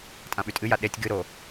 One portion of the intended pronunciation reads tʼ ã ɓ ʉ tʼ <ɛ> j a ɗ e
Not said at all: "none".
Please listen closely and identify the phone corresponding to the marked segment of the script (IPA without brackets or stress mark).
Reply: ɨ